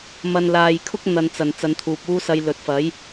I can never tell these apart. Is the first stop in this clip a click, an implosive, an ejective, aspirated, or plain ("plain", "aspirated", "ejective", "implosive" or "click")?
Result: aspirated